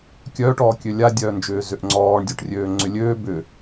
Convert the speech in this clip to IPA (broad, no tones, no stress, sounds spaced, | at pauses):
kʲ œː ʈ ɔː kʲ ø lʲ a dʲ œː n d͡ʒ ʏː z ʏ ʔ ŋ͡ǀ ɔː ɳ dʲ o ʈ rʲ øː ŋ͡ǀ ʏ lʲ øː b ʏ